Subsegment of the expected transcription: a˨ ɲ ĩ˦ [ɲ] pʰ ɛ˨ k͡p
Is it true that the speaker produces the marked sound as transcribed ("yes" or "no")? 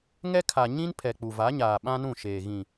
no